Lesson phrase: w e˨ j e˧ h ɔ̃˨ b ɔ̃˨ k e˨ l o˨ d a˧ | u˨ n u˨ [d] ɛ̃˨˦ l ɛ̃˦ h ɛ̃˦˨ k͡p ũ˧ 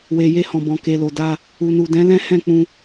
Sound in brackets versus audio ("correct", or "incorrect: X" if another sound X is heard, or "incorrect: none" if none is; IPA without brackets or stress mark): correct